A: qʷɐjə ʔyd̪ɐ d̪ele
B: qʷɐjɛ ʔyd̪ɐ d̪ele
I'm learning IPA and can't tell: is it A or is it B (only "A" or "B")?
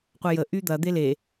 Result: A